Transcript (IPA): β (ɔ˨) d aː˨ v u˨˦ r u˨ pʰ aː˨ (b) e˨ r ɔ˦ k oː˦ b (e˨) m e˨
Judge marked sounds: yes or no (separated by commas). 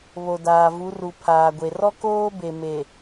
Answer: no, no, yes